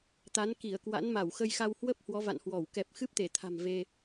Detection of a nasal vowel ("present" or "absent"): absent